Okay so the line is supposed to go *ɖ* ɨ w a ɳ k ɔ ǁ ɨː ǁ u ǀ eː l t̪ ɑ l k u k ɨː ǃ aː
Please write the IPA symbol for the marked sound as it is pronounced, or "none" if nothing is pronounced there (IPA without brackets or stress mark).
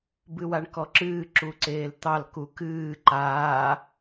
b